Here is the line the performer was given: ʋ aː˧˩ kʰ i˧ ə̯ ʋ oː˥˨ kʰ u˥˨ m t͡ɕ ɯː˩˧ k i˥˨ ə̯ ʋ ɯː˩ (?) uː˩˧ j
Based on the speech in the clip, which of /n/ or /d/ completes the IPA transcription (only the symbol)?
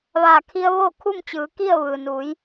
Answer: n